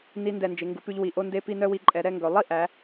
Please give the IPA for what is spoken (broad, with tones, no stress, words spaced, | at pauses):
ni˧ ndɛ˧˩nd͡ʒe˩˧ŋɡu˩˧pʉ˧ʎ wi˧˩ʔo˥˧nde˥˧pi˥˧ nœ˥˧wi˧ǃʼɛ˩˧ ɾɛ˥˧ŋɡɵ˩˧ lˠi˥ʔæ˩˧